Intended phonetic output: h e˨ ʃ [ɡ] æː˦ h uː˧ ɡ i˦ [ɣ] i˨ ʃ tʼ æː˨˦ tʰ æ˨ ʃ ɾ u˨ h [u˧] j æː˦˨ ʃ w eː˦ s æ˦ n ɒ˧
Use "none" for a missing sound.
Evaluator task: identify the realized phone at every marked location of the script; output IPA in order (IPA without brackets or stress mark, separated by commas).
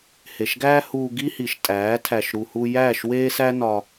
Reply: ɡ, h, u˧